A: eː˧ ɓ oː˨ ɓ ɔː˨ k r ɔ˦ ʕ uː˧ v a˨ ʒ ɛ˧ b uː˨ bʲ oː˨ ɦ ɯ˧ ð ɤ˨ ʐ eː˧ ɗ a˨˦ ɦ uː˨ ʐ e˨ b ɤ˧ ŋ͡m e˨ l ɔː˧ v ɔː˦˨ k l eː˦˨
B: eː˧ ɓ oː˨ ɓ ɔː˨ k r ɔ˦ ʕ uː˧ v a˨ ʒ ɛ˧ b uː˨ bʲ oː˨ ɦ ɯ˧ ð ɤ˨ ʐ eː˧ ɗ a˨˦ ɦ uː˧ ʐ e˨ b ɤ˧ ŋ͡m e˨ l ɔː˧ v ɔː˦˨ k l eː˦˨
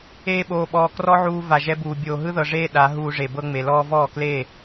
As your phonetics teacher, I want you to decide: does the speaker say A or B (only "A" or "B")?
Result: B